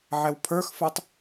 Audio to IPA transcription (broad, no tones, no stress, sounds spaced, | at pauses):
ʕ ɛ w pʰ ə˞ x f ə˞ tˤ